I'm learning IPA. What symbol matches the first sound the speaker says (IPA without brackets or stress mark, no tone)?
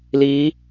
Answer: l